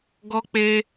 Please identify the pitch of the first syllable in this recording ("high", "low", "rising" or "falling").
high